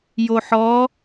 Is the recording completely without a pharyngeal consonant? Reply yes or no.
no